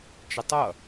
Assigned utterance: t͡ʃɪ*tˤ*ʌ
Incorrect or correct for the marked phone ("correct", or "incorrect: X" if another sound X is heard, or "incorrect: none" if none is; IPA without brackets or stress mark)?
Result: correct